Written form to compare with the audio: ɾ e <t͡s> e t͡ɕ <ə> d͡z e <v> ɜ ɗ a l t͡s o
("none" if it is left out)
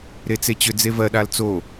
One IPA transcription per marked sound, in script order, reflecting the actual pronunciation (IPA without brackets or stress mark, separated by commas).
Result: t͡s, ʏ, v